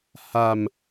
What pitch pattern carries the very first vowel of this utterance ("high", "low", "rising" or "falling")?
low